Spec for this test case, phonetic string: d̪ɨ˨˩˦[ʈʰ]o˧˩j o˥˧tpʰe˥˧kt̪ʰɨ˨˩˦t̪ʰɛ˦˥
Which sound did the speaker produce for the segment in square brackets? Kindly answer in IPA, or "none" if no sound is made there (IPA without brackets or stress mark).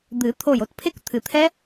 t̪ʰ